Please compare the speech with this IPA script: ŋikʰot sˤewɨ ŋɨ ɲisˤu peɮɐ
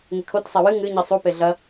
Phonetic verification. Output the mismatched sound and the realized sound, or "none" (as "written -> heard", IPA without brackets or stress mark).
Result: none